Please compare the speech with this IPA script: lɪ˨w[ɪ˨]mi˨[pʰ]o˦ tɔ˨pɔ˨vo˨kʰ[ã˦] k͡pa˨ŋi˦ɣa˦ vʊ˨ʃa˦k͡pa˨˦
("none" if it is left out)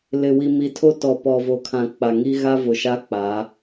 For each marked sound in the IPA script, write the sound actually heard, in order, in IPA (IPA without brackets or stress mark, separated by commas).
i˨, tʰ, ã˨